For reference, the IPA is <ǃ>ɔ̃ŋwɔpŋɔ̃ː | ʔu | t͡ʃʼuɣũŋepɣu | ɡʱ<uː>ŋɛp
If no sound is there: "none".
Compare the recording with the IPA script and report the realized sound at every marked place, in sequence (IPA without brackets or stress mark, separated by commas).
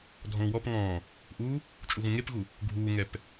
dʱ, uː